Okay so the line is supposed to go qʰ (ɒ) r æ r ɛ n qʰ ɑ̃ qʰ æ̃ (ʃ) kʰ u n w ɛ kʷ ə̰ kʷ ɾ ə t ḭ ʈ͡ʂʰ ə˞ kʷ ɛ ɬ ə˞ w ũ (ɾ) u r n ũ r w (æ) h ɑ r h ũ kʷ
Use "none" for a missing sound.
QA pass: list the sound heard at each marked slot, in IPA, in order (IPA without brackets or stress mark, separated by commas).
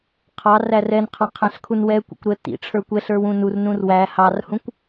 ɑ, ɬ, n, æ